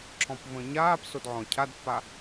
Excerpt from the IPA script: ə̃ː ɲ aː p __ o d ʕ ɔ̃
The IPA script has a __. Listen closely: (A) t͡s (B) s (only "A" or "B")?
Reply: B